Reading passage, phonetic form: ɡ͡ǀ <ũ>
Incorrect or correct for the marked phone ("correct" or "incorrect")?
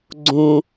correct